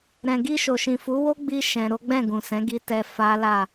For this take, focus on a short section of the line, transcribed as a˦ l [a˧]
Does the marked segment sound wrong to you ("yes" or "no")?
yes